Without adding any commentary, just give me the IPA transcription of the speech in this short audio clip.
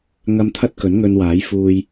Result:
ŋ ɐ˧ m t̪ʰ ɐ˥ t̚ k ɵ˨˥ n ŋ ɵ˧ n w aː˨˥ j f uː˧ j

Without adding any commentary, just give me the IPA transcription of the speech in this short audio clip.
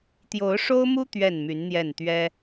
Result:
t̪ j o˨˦ ʊ̯ ʂ o˦ ʊ̯ m u˦ t̪ ɥ ɛ˥˨ n m y˨˦ n n̪ j ɛ˥˨ n t̪ ɥ ɛ˦

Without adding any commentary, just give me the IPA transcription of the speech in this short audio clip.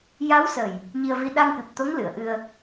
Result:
j a˧˥ w s ə˨˩ j | ɲ i˧ ə̯ v i˧ ɗ a˧ ŋ k ɨ˨˩ p̚ t̪ o˧˥ ŋ l ɨ˨˩˨ ə̯ ʔ ɨ˧ ə̯

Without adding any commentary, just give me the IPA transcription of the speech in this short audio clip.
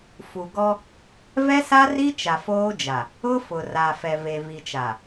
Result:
f u˨ ɡ ɔ˦ | v ɛ˦ s a˦ r i˦ t͡ʃ a˨ f oː˦ d͡ʒ a˨ | ʊ˦ f ʊ˨ r a˨ f ɛ˨ v e˨ v i˨ t͡ʃ a˨

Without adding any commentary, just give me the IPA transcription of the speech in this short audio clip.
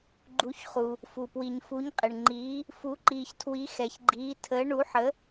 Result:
ɡ͡ǃ u˩˧ ç χ u˩ | f u˩ p w i˩ ɲ f u˩˧ ɲ qʼ ɪ˩ ɳ ŋ͡ǃ iː˩˧ | f u˩˧ ǃ iː˩ ç tʰ w i˩˧ x ɛ˩ ç ɡ͡ǃ iː˩˧ tʰ əː˩˧ ɳ u˩˧ ħ ə˩˧

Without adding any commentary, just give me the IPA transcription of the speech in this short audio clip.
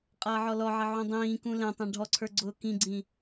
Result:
qʼ ʌː ʕ ɔ l ɔ ʕ ə ʕ ũ dˤ ĩː k ũ l ɛ̃ tˤ ɛ̃ ɖʱ ɔ ǀʰ ə˞ ɡ͡ǀ ʊː k ĩ ɡ͡ǀ ĩ

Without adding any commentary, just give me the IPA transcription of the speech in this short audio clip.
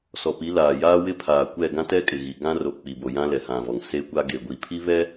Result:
s ɔ˨ p i˨˦ l aː˨ j aː˦ w ɪ˦ pʰ aː˨ kʷ ɛ˦˨ ɡ ã˦ t ɛ˦ kʼ ɪ˨ ɣ i˨ ɡ ã˦ r o˨ k͡p i˨ b o˨ j ã˦ l ɛ˨ h ã˨ v ɔ˨ ŋ s e˦ kʷ a˦ ɡ e˨ ɡʷ i˨ pʰ i˦ β ɛ˦

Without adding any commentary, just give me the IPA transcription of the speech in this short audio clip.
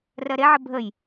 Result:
r ɜ ɾ e ʕ ə bʱ ə j

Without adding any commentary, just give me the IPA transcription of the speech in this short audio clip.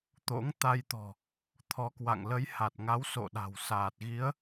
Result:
t̪ o̰˧˥ ŋ t̪ a˧ j t̪ ɔ̤˨˩ | t̪ʰ ɔ˨˦ k w a̰˧˨ ŋ l ə˨˦ j h a˨˩ t̚ ŋ a˨˦ w s o̰˧˨ ɗ a̤˨˩ w s aː˨˩ t̚ ɣ i˨˦ ə̯

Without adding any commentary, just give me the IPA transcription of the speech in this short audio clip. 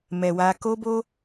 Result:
m ɛ˨ w a˧ k o˦ b o˦

